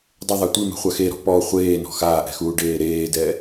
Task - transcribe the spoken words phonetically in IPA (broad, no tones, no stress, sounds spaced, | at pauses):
dˤ ɪ ðˤ a tʷ i m ɛ̤ χʷ a x e ɾ ɔ̤ p ɔ χʷ eː n ɔ̤ x aː ʔ ɛ̤ x uː ɖ eː ɾ eː d ɛ